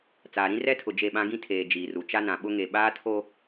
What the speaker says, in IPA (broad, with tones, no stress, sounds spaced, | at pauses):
t͡s aː˨ ɾ ĩ˦ r ɛ˦ tʰ ʊ˨ d͡ʒ e˦˨ ɓ ã˦ ɡ ĩ˦ tʰ eː˨ d͡ʒ iː˨ r u˨ t͡ʃ a˦ n ã˨ ɓ ʊ˦ ŋ e˨ ɓ aː˦ tʰ o˦